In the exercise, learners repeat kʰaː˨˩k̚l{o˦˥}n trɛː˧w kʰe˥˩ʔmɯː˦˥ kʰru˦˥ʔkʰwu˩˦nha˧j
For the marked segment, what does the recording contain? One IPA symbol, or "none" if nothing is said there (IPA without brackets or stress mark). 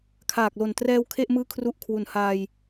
o˨˩